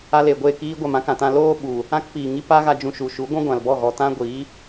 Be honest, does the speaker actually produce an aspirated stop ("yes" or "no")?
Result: no